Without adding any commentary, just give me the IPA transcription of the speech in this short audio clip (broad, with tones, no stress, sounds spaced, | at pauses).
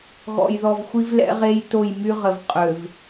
ɣ ɔ̰˨ j ð ɔ˨ v xʷ i˦ v l ɛ̰˦ ʁ e˦ j t o˦˨ j m y˦ ʁ ə˨ v qʼ ø˨ v